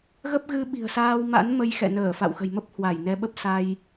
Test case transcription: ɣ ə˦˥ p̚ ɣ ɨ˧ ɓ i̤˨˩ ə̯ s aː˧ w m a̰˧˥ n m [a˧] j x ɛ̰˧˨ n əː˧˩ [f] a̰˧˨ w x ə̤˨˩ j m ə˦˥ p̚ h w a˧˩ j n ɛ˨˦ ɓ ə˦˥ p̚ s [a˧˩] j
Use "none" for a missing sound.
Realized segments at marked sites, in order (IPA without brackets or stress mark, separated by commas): ə˧, f, a˧